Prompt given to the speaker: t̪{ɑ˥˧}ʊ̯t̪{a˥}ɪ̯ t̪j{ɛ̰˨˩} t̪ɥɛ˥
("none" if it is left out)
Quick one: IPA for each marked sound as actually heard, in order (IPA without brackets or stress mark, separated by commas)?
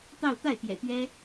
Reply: ɑ˥˧, a˥˩, ɛ̰˨˩